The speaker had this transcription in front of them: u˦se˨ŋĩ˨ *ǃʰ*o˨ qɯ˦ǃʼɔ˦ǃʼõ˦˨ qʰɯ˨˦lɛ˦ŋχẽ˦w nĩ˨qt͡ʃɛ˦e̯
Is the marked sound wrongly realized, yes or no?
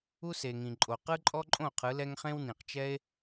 yes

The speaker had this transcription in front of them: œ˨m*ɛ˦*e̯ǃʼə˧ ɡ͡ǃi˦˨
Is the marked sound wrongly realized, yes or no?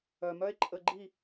yes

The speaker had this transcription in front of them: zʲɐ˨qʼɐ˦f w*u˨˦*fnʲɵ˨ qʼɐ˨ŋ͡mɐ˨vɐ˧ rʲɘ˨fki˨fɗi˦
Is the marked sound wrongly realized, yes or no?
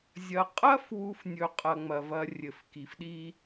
yes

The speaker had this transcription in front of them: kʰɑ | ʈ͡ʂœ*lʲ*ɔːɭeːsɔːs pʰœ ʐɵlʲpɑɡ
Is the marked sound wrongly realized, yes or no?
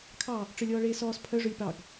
no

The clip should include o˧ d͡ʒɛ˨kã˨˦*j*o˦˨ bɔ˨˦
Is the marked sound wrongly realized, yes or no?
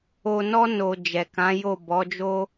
no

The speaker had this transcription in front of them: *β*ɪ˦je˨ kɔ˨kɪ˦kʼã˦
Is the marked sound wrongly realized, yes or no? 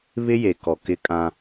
no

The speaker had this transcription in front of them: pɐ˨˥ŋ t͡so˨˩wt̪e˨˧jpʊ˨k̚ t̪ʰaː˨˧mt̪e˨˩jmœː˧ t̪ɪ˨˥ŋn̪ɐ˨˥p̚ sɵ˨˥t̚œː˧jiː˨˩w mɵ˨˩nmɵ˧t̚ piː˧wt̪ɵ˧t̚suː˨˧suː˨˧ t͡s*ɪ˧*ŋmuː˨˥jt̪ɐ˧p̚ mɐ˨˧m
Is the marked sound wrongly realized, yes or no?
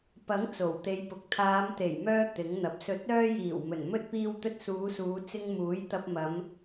no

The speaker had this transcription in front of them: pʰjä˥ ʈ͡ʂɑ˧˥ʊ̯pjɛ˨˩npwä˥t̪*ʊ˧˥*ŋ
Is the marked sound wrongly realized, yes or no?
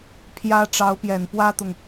yes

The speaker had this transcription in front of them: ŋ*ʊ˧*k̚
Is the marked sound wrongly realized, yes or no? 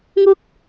yes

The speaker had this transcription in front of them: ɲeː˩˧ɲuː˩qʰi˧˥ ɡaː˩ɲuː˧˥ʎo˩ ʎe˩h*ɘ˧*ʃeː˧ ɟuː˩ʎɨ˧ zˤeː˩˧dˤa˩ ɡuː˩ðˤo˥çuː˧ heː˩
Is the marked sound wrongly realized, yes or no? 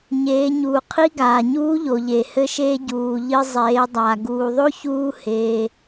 no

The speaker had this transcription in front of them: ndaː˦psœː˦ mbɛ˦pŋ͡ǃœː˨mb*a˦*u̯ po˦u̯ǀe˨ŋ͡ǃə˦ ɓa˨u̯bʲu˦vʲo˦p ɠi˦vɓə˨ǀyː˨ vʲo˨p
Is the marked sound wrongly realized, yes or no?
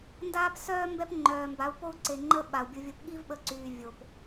yes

